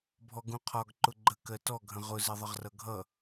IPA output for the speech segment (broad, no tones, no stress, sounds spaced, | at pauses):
bʱ ɔ ɡ ũ qʰ ɒ ɡ ǃ ʊ ɡ͡ǃ ə k ɜ t ɔ ɡʱ ə̃ ʁ ʊ z ɪ ðˤ ə ʁ r ʌ ɡʱ ʌ